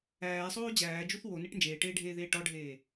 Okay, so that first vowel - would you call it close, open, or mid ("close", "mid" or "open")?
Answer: open